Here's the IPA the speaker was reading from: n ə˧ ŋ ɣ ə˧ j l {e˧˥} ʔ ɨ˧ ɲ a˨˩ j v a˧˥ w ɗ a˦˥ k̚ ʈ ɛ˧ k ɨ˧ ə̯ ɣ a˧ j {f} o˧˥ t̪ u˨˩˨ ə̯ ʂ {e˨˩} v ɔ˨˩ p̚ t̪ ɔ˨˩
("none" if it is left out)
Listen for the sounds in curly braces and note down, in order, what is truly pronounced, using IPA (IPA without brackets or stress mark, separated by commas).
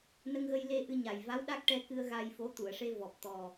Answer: e˧˥, f, e˧